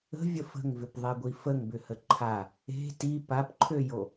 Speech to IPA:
ə̤ vʲ ə f ə̤ ŋ v ʏ p ðˤ e ɡʷ i f ə ŋ b ʏ h ə ǃʰ a | e̤ t i p a p ǃʰ ø j o

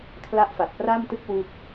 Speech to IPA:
kʰ l a˦˥ ʔ f a˨˩ t̚ p r a˥˩ m t ɯ˥˩ k̚ w u˦˥ k̚

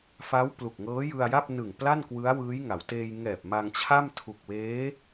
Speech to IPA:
f a˦˥ w p l u˨˩ k̚ ŋ ɤː˦˥ j ɯ˧ a̯ j a˥˩ p̚ n ɯ˨˩ ŋ p l a˥˩ n k w ɯ˦˥ a̯ w ɯː˦˥ j ŋ a˩˦ w t eː˧ j ŋ ɛː˨˩ p̚ m a˧ ŋ t͡ɕʰ a˥˩ m tʰ u˨˩ k̚ w eː˦˥

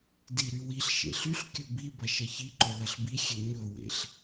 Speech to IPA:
d i ɾ y w i ɬ ʃ ḛ ɬ y ɬ kʲ ɵ b i b ɐ ʃ ɐ ç i ǃ ɵ l ɐ ɬ b i xʲ e ɲ ɵ w ḛ ɬ

